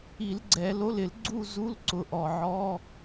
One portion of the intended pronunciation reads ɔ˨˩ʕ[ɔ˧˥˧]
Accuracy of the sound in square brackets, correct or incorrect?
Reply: correct